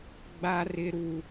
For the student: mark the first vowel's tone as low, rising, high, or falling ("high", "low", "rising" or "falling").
high